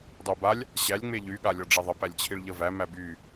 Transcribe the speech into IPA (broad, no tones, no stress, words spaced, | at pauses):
dˤobalʲ | ɕælʲ ŋ͡meʎy ɠalʲɒɖ͡ʐeðˤə pælʲt͡ɕʰiɭʎəvæ mæby